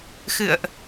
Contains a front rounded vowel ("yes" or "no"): no